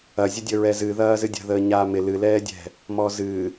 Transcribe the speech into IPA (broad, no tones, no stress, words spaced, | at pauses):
ɐzʲədʲəɹɛ zɨðɐː zɨdʲə̤ðəː ɲaːmɪ lɨlɛːdʲɛ̤ | mɔzɨ